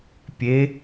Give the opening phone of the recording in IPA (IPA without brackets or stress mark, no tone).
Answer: pʲ